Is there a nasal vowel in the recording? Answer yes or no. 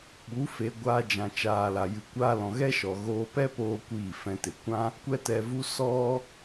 yes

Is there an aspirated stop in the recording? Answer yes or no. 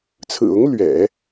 yes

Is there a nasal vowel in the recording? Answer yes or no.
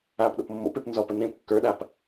yes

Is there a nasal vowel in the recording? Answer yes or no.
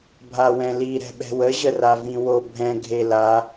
yes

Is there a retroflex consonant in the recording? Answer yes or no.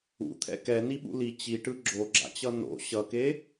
yes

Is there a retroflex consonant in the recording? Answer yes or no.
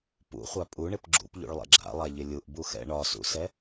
yes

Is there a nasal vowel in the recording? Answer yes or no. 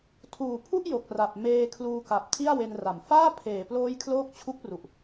no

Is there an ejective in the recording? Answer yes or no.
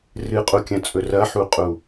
yes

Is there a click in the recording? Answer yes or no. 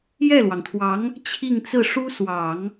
no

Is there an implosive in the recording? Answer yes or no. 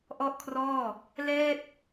no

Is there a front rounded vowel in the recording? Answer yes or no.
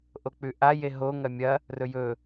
no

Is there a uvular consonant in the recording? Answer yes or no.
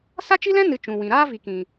no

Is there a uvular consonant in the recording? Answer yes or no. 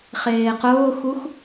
yes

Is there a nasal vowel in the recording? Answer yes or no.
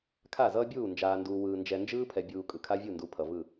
no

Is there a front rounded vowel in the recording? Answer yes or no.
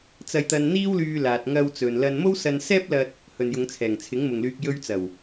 yes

